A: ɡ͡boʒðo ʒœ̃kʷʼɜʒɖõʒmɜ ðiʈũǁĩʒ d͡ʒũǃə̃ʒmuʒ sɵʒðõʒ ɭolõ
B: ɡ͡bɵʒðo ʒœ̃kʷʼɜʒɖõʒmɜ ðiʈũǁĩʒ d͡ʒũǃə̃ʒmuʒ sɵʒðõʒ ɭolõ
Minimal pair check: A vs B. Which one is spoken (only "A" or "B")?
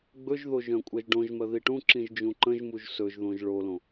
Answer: B